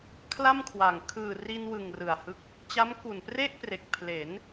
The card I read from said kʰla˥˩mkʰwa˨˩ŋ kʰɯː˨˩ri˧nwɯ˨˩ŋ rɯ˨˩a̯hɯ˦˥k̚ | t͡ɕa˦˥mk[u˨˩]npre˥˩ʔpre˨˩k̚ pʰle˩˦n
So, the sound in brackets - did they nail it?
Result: yes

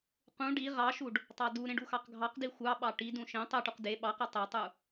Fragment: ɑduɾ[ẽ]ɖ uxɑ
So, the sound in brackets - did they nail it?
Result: yes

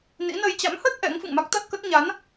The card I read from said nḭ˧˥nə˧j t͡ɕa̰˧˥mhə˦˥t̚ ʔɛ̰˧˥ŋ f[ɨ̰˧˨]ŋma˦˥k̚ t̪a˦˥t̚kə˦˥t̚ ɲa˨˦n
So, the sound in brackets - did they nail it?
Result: yes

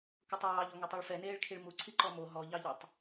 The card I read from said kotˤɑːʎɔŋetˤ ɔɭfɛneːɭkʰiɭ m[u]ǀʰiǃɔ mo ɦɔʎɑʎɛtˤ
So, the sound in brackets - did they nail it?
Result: yes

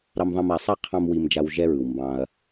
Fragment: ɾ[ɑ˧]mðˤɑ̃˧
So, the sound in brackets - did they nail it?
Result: yes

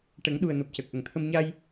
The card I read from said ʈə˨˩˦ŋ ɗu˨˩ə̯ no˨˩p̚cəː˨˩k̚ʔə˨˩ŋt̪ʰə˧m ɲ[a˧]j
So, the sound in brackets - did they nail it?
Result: yes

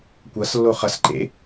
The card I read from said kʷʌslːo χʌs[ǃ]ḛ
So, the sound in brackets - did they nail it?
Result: yes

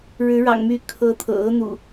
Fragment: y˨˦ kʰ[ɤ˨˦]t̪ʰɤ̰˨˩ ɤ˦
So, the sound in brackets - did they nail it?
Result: yes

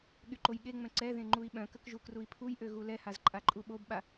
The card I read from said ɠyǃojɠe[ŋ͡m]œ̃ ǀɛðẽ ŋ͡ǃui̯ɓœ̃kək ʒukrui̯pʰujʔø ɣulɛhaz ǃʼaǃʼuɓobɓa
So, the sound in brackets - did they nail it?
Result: yes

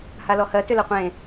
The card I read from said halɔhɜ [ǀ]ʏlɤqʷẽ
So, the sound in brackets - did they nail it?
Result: no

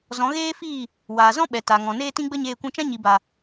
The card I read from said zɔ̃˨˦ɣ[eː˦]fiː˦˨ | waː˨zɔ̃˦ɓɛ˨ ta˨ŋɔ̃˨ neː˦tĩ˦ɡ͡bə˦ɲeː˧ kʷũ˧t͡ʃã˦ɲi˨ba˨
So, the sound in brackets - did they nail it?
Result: yes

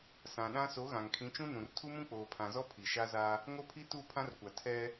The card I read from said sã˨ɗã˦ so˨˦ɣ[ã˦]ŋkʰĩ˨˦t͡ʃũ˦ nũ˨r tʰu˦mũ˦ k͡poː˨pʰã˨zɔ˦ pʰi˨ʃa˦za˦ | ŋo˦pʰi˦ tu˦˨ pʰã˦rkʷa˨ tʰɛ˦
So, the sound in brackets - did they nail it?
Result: no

